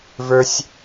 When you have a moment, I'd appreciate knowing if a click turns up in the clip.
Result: no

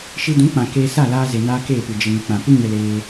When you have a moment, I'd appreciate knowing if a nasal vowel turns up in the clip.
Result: yes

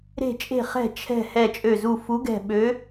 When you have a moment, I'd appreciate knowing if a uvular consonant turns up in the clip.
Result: yes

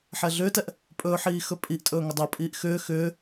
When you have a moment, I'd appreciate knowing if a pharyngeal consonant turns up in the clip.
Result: yes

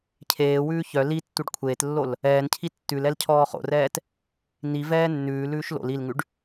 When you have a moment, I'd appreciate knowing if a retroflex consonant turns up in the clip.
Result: yes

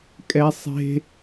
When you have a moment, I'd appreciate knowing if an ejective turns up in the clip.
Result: yes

